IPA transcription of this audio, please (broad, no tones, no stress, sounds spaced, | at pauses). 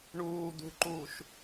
ɳ uː d̪ ṳ ǃ uː ʃ